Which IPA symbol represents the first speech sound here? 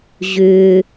ʑ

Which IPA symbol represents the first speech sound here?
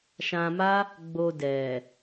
ʃ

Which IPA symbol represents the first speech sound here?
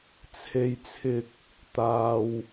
t͡sʰ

